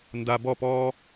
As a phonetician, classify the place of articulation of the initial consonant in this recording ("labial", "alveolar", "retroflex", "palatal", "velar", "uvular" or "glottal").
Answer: alveolar